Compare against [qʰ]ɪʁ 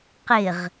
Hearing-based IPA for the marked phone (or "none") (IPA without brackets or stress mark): q